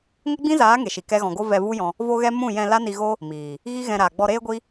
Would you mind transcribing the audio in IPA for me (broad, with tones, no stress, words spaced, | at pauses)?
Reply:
ŋə˦ɡ͡bĩ˦zaː˨˦ ŋe˨ʃi˨ kɛ˦ɣɔ̃˧ ɡo˦ vɛ˧vu˦jɔ̃˧ | vo˦ɣɛ˦ mũ˦˨jɛ̃˧ la˦ni˧ɣo˦ | miː˨ | ɣi˦ ɣɛ̃˧ ɾaː˨ɡ͡bɔ˧ɾeː˦ɡʷi˦